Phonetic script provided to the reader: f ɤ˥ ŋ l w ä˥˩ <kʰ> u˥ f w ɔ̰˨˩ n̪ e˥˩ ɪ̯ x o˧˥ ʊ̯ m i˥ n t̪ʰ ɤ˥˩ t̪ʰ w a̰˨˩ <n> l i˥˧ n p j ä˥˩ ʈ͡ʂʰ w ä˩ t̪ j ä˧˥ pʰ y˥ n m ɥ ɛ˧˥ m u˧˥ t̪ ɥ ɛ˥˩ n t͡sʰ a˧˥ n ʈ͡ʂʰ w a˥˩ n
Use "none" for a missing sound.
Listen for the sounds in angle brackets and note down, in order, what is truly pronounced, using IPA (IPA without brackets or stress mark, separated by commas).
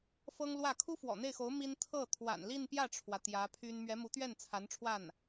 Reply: kʰ, n